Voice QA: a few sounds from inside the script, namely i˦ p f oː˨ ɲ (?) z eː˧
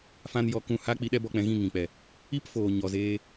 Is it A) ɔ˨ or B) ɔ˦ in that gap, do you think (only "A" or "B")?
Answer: A